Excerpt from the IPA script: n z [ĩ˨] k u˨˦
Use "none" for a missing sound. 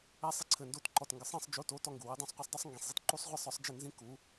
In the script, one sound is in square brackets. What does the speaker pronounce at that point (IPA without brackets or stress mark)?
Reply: ĩ˦